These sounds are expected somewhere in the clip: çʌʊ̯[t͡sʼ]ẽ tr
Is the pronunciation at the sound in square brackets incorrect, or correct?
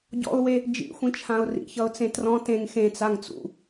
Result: incorrect